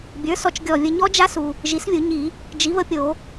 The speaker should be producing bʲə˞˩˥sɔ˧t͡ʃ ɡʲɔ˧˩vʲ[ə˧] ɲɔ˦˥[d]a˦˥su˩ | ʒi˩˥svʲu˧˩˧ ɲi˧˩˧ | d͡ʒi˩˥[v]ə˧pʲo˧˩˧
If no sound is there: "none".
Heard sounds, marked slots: ə˧, d͡ʒ, v

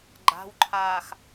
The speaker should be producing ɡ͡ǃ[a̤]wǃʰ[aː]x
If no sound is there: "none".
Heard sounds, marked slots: a̤, aː

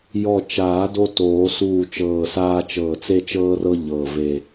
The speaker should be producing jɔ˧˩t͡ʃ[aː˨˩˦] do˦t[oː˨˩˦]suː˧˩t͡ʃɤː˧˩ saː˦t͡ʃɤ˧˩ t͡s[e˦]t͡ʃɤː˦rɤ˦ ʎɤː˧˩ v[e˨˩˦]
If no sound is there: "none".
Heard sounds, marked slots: aː˨˩˦, oː˨˩˦, e˦, e˧˩

